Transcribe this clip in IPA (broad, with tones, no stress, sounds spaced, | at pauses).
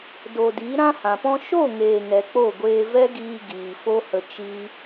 d o˨ d i˨˦ ɾ ã˦ h ã˨ p ɔ̃˦ ʃ o˦˨ ŋ eː˨ ŋ ɛ˨ k͡p o˦˨ ɡʷ eː˧ v ɛ˦ ɡ iː˧ ɡ iː˨ f o˦ h ə˧ t͡ʃ i˦